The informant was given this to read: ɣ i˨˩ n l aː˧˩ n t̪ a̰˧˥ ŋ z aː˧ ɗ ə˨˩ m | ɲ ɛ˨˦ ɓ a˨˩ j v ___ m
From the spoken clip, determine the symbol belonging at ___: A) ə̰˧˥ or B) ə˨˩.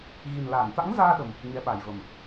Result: B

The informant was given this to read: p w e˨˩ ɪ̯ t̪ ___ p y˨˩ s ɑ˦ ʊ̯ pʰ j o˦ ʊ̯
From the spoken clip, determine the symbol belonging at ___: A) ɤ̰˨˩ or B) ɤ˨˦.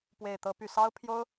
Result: B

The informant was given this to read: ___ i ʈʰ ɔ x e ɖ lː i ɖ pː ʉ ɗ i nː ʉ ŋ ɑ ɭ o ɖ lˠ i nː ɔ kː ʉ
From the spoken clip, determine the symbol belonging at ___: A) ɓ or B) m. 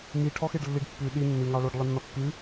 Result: B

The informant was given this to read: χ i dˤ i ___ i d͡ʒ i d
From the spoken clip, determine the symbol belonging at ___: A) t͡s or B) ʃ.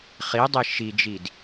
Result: B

